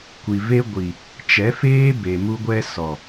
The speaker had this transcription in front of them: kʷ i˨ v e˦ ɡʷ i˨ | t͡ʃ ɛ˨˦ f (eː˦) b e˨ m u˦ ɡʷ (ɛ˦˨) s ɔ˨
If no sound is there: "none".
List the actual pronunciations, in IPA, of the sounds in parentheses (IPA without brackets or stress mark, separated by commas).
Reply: eː˦, ɛ˦